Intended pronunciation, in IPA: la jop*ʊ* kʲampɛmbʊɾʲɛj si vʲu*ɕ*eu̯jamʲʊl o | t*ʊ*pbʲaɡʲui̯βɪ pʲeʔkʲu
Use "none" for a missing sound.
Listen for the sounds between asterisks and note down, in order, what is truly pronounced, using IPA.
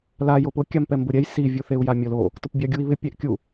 ʊ, θ, ʊ

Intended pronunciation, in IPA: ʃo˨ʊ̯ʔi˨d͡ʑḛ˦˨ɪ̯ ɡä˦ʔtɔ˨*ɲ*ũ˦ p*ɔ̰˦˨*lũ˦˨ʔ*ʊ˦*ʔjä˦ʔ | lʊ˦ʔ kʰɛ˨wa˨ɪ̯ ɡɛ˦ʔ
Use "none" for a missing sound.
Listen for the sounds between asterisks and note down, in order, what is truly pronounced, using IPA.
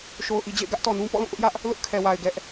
n, ɔ̰˦˨, ʊ˦

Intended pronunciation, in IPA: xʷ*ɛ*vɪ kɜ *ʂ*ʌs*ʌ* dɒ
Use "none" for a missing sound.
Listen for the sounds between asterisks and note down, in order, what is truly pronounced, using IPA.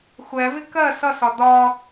ɛ, s, ɒ

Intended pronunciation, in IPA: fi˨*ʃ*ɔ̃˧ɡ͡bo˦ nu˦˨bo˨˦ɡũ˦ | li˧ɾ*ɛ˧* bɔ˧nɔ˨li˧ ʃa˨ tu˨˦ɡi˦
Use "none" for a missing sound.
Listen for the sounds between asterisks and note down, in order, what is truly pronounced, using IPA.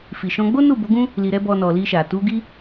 ʃ, ɛ˦

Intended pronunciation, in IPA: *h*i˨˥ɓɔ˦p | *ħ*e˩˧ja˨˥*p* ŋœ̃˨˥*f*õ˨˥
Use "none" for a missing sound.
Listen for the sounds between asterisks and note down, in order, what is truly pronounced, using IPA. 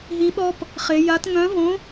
ɦ, χ, t, v

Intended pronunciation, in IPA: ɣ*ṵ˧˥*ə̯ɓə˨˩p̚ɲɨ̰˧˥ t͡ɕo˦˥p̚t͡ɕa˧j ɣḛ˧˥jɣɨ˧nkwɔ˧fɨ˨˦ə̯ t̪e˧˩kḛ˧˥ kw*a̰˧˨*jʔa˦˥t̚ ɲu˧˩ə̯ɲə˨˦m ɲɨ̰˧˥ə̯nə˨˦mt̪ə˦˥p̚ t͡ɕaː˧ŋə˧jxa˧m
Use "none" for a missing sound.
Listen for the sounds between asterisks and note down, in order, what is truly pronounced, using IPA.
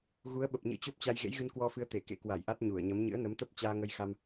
u˨˦, a˧˩

